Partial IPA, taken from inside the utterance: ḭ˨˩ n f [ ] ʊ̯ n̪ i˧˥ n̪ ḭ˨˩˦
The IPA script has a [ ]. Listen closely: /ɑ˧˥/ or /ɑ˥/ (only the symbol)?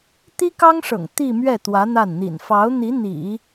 ɑ˧˥